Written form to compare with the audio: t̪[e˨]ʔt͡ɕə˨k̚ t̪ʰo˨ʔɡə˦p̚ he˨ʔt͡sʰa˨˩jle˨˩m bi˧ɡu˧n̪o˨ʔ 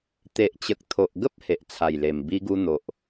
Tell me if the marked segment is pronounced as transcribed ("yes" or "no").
yes